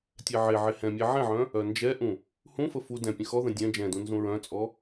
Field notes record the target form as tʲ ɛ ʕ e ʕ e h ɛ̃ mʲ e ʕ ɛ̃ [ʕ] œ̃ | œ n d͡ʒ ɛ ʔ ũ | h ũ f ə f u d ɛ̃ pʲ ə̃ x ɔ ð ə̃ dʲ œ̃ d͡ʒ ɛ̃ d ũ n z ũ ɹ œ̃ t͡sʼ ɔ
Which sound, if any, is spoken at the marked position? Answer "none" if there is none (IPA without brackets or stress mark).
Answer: ʕ